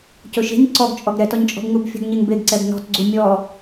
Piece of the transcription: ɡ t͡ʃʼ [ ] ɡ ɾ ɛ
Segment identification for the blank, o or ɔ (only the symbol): ɔ